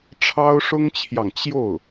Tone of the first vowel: high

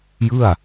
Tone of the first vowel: falling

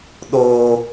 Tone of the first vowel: high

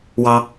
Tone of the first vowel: high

